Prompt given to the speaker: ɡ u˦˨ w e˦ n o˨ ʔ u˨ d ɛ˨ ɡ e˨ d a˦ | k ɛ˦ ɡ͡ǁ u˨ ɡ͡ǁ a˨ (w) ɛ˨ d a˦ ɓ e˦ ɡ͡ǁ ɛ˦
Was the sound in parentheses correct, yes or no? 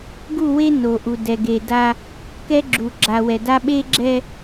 yes